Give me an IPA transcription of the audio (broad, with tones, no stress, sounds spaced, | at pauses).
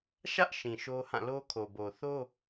ʃ ä˦ ʔ ʃ ĩ˨ ʃ o˦ h ã˦˨ l o˦ kʰ o˨ b o˨ θ o˦